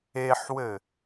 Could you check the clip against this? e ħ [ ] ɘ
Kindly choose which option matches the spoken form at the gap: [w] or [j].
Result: w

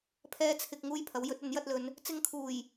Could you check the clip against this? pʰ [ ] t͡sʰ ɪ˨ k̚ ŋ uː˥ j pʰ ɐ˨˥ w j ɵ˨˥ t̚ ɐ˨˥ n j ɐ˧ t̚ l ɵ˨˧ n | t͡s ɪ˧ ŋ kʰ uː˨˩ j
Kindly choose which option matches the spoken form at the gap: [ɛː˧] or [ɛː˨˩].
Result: ɛː˧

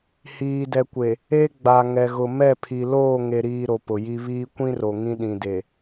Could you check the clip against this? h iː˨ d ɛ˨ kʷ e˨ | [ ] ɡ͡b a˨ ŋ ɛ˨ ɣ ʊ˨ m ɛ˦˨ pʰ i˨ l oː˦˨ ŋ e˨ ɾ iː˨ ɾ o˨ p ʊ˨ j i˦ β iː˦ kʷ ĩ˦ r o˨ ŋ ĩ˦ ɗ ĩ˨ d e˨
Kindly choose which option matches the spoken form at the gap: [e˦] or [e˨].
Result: e˦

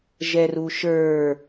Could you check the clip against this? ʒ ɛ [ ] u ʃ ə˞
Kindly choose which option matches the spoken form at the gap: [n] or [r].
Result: r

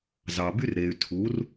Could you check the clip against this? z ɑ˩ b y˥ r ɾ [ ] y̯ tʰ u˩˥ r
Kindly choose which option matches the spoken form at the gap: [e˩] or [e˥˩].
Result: e˩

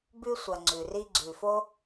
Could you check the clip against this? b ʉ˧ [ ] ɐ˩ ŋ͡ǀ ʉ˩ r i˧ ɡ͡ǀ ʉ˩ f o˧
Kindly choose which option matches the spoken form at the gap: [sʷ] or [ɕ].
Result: sʷ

